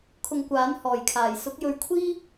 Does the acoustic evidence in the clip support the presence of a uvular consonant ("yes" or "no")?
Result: no